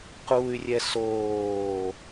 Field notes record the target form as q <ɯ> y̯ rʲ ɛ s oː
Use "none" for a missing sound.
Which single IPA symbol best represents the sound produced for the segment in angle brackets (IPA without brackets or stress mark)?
u